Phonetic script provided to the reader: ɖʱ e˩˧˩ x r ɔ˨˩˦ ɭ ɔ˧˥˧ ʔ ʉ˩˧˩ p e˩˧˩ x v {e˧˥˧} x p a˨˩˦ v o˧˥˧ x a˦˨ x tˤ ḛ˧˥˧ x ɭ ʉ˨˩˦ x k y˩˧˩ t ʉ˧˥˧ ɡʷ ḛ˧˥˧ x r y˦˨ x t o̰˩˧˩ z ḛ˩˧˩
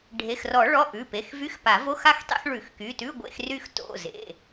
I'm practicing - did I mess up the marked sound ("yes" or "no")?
yes